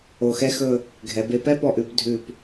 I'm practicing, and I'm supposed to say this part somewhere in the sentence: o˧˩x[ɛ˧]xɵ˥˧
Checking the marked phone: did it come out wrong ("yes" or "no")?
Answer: yes